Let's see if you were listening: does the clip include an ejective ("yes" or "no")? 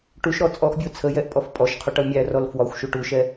yes